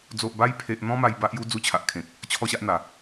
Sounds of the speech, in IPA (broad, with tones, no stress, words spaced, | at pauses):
d͡zo˨ʔba˧jpʰe˨ʔn̪ɔ̃˧ ma˧j ba˦ʔju˦ d͡zu˦t͡ɕʰa˨ʔkʰẽ˨k̚ | t͡ɕʰɔ˥˧ɕa˦ʔn̪a˨˩